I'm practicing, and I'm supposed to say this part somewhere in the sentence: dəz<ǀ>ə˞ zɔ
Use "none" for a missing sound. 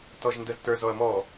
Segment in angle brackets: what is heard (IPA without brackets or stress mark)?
t